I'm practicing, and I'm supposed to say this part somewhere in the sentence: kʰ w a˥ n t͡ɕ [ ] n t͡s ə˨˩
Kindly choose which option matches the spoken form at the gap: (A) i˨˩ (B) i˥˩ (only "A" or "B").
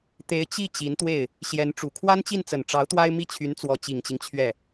B